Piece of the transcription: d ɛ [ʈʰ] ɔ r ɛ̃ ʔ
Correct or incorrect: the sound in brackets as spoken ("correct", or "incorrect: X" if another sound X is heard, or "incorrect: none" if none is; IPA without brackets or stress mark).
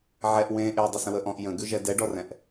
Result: incorrect: ɖ